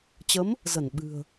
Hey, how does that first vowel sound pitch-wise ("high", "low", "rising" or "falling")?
rising